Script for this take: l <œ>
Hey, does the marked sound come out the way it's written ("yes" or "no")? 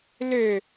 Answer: no